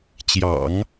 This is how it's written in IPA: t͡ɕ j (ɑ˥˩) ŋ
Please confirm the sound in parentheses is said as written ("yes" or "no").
no